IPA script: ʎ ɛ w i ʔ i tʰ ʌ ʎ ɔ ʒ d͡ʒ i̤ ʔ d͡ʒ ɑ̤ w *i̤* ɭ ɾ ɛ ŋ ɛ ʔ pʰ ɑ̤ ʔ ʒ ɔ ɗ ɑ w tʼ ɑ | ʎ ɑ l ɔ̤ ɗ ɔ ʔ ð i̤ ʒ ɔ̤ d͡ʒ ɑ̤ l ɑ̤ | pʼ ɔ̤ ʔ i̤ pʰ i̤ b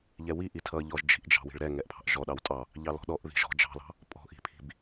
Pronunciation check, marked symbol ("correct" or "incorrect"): correct